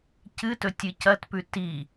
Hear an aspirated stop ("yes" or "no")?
no